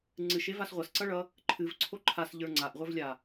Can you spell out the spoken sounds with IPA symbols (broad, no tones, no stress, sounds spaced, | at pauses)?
ŋ͡ǀ ɨ ʃ e v a s ʁʷ ʌ s ǀ ʌ ɭ ʌ | ǃʰ ɨ v ǀʰ o ǃʰ a s ʎ ə˞ ŋ͡ǀ a ʔ ʁʷ ə˞ v lʲ a